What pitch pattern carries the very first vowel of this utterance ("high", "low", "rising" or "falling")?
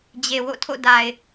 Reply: low